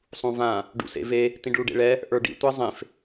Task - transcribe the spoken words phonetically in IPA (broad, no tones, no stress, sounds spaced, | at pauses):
sˤ ũ v ã | ɖ ṵ s ḛ v e | t ĩ ɖ ɭ u ɖ ḛ ɭ ɛ | ʔ ə˞ ɖ ḭ tʷ ɛ zˤ ẽ f